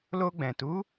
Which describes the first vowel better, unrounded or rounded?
rounded